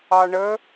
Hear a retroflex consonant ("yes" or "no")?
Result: yes